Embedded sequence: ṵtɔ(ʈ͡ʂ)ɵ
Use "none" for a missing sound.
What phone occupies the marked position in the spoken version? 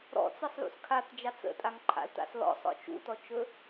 t͡ʃ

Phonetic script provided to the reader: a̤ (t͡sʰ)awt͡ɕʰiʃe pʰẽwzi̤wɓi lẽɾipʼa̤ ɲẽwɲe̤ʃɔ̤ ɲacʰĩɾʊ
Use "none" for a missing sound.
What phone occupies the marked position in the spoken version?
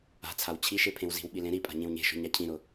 t͡sʰ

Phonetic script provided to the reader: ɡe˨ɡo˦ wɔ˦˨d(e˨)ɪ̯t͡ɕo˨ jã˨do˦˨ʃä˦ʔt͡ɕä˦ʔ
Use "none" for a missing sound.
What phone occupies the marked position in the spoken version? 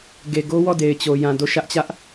e˨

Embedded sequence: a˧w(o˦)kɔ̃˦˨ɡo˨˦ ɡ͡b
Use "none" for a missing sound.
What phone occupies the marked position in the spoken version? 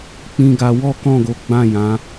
ɔ˦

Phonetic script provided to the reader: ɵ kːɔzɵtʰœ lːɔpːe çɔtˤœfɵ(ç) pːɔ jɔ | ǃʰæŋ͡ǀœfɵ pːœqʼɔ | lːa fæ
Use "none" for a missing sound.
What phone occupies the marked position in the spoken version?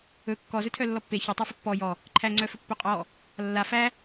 none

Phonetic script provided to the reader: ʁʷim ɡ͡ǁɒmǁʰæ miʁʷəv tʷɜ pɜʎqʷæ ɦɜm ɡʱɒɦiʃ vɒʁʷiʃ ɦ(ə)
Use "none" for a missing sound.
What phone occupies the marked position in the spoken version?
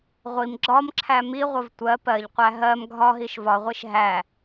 æ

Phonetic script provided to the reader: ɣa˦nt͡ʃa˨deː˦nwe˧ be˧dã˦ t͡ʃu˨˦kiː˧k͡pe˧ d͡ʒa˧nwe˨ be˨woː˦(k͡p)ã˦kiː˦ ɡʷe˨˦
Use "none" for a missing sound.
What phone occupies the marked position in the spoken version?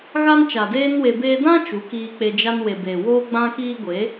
ɡ͡b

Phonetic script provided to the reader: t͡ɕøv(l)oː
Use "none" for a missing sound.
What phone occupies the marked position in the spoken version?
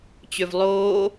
lˠ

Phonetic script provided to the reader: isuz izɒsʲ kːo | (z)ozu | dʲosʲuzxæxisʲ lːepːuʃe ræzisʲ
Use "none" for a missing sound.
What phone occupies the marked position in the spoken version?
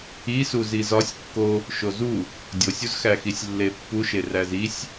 ʃ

